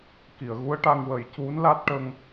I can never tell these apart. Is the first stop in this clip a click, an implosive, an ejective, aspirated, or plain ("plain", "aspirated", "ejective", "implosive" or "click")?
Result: plain